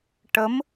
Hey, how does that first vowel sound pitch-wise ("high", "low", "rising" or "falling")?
rising